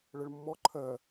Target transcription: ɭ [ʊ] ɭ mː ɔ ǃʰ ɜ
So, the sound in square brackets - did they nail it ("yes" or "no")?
no